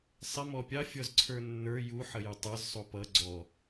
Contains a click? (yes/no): yes